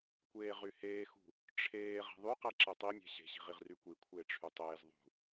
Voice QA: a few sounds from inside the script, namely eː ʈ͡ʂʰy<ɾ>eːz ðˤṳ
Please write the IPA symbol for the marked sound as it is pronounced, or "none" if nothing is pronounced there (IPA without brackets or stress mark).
tˤ